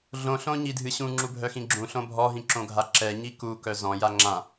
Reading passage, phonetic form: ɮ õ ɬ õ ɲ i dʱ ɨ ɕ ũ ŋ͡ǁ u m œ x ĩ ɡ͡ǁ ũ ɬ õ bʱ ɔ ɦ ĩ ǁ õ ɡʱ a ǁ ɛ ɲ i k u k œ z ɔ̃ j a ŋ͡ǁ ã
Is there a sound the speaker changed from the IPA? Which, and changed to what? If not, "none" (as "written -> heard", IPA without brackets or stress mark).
m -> bʱ